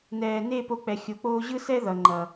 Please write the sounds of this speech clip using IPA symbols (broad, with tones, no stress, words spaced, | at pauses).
nɛː˨ne˦˨ po˧k͡pɛ˨ xʲo˨k͡poː˧ʑɯ˦sɛ˦ ðʌ˨ŋ͡ǃʌ˨